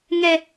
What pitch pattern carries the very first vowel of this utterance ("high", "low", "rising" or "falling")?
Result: high